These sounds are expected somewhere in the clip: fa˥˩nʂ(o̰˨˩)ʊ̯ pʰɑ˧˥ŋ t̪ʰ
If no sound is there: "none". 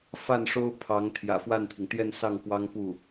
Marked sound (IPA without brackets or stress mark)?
o˥